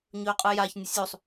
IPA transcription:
ɲ ɵː qʼ ɯ j a ç nʲ ə sʲ u sˤ

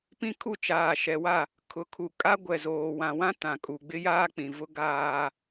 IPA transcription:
p ĩ˦ kʰ u˦˨ t͡ʃ aː˨ ʃ ɛ˨ w a˦˨ | kʰ ʊ˨ kʰ u˨ kʼ a˦ ɡʷ ɛ˨ z oː˨ w ã˨ w ã˦ t ã˨ kʼ u˨ ɡ͡b ɪ˦ j aː˦ k͡p ĩ˨ v ʊ˦ ɡ aː˦

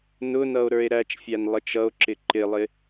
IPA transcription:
n ʊ n ʌ o̯ ɾ ə˞ e̯ ɾ æ t͡ʃ fʲ æ n lˠ ə t͡ʃ ʌ o̯ ǁ ɪ ǃ ɪ lˠ ɪ

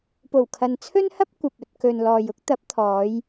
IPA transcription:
p o˨˩ w kʰ ɐ˨ n t͡sʰ ɵ˥ n h ɐ˥ p̚ kʷ ɐ˨ p̚ ɵ˨ t̚ k ɵ˨ n l ɔː˨ j ʊ˥ k̚ t̪ ɐ˨˥ p̚ t̪ʰ ɔː˨˧ j

